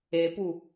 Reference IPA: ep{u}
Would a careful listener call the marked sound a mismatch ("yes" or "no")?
no